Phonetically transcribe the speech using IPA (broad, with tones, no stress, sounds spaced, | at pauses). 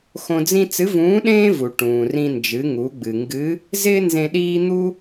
x õ˧ d͡z ĩ˥ t͡s ɨ˧˥ v ũː˧˥ ɗ ẽː˥ v u˩ ʈ ũː˩ r ĩ˧ n d͡ʒ ɨ˩˧ ŋ u˩˧ ɡ͡b ɨ˩ ŋ ɡ ɨ˧˥ | z ɪː˥ n z ẽ˧ ɗ iː˥ n̪ u˥